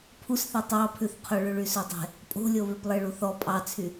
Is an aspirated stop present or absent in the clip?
present